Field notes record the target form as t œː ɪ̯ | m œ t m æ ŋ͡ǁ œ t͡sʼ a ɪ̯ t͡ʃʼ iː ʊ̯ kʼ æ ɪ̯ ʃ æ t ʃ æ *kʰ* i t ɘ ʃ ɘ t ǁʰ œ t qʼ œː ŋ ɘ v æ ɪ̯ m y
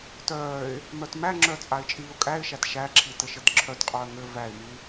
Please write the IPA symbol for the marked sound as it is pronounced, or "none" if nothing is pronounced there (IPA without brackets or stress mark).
ǁʰ